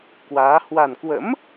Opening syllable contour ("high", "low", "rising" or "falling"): rising